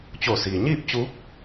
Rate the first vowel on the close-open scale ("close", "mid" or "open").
mid